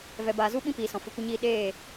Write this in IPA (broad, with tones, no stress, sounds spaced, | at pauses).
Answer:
v ɛ˨ b aː˨ z u˦ ɓ ĩ˦ p iː˨ s ɔ̃˨ f ɨ˨ kʷ ə˧ ɲ iː˧ ɗ eː˦˨